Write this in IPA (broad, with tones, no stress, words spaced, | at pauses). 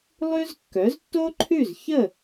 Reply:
lˠʉ˥z kːœ˩˥ztːo˥ǃʰʉ˥˩zçə˥˩